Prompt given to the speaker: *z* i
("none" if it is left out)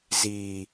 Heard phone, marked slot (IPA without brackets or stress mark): z